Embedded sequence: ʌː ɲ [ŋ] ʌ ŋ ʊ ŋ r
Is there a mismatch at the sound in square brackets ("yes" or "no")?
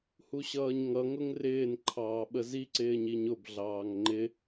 no